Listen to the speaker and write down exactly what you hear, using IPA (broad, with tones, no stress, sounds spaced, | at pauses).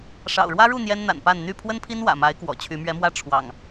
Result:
ʂ ɑ̰˨˩ ʊ̯ ɻ w ä˦ ɻ u˥˨ n̪ j ɛ˦ n n̪ a̰˨˩ n p a˥˨ n n̪ y˥˨ pʰ w ə˦ n pʰ i˦ n w ä̰˨˩ m a˨˦ ɪ̯ k w ɔ̰˨˩ t͡ɕʰ y˨˦ m ɥ ɛ˨˦ m w ä˥˨ ʈ͡ʂʰ w ɑ̰˨˩ ŋ